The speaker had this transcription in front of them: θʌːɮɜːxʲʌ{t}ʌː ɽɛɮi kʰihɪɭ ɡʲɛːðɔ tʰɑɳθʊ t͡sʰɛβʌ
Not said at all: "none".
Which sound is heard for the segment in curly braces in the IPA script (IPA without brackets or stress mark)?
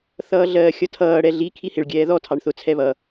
tʰ